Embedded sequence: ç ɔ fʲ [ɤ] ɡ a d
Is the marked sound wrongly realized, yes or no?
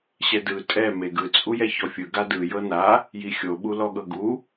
yes